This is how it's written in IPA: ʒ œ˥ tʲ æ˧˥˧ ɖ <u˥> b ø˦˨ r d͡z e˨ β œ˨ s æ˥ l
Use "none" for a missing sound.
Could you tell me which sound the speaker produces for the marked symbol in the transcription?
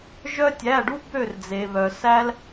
u˥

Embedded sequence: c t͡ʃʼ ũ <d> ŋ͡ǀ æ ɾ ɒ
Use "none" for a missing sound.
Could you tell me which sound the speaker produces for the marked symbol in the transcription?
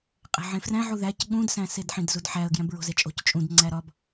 d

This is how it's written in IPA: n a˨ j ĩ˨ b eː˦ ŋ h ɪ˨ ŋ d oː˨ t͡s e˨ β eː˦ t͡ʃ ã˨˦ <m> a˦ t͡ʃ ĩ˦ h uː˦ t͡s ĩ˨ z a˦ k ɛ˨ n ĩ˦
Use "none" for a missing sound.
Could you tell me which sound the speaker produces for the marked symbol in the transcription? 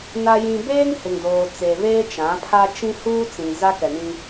pʰ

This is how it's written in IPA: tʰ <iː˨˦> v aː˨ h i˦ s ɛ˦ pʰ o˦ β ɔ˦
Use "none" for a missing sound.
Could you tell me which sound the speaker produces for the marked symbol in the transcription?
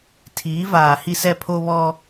iː˨˦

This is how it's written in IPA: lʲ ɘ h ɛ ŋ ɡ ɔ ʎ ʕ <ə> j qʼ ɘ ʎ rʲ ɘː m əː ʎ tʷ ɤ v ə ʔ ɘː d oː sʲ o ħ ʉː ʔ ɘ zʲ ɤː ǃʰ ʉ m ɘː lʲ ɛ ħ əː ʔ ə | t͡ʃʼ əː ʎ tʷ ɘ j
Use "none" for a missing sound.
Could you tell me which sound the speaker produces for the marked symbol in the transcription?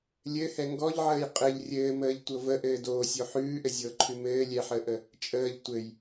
əː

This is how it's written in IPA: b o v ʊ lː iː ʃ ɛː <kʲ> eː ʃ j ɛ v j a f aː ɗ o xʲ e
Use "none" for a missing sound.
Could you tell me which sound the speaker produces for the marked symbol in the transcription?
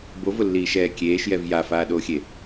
kʲ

